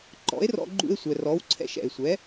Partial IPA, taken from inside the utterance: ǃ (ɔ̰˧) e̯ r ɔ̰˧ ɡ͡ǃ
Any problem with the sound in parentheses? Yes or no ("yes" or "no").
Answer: yes